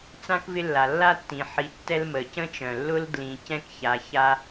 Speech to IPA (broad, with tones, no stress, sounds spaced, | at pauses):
t͡s ã˥ k v ɪ˦ lː a˩ lː a˥ tː ĩ˩ ħ i˨ tː ɛ˦ l m ə˩ c ə̃˥ t͡ʃ œ̃˩ lː ʊ˥ l d l ĩ˨ c ɛ̃˥ k ç a˨ ç a˦